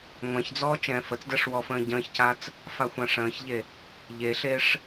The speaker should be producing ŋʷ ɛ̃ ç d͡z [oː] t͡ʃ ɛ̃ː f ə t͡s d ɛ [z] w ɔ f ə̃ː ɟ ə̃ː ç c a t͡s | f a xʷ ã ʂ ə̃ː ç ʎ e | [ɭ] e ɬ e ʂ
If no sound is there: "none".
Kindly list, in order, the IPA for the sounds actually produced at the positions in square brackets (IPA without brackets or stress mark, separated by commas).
ɔː, ʂ, ʎ